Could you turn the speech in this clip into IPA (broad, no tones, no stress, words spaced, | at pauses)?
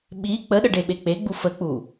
ɓi k͡pəɗəɖeɓe k͡peɡ͡bu fək͡pu